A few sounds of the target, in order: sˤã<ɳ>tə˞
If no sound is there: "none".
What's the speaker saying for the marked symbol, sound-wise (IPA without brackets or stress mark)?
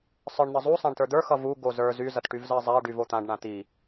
ɳ